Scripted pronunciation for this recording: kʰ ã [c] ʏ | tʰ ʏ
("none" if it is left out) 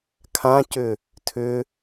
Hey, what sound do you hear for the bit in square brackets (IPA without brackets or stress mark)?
c